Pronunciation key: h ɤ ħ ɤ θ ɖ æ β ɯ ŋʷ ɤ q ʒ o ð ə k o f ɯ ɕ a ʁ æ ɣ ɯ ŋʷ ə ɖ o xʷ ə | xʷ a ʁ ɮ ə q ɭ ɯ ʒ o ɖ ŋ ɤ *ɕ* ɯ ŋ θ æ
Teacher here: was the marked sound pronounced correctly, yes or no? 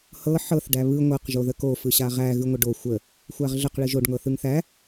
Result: no